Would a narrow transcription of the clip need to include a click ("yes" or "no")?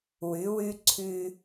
yes